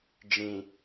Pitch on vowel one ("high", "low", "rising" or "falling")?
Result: low